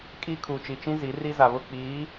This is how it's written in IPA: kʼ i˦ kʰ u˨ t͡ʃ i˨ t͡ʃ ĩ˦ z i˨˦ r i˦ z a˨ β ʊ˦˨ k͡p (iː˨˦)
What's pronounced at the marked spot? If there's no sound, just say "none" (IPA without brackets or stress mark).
iː˨˦